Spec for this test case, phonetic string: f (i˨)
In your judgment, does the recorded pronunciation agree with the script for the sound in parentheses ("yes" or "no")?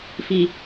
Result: yes